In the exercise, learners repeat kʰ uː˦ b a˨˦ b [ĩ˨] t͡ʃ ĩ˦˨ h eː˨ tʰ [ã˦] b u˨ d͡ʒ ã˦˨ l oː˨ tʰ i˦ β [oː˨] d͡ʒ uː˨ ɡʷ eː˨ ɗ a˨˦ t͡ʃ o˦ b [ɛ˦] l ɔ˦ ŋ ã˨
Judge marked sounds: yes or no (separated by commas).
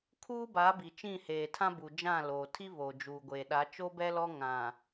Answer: no, yes, no, yes